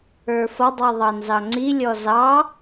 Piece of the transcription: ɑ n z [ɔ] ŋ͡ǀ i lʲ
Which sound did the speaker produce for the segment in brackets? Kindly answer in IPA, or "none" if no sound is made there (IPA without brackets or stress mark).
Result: ɑ